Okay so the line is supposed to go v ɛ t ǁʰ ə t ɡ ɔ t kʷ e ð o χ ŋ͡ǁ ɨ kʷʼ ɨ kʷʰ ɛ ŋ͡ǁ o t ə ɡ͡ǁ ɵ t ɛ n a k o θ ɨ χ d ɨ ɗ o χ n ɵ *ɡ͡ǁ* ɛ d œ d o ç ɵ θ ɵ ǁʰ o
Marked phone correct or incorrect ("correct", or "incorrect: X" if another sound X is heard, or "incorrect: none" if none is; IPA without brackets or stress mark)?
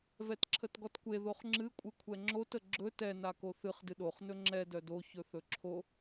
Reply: incorrect: ŋ͡ǁ